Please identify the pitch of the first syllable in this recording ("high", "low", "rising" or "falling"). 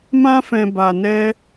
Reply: high